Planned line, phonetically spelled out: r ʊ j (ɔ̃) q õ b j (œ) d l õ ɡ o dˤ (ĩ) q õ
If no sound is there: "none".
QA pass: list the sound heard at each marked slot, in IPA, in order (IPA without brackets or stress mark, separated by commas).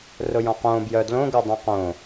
ɔ̃, œ, ĩ